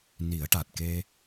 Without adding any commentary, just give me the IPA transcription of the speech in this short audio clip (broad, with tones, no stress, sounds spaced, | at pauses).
n i˨˩˦ ə̯ ʈ a˨˩ t̚ k e˧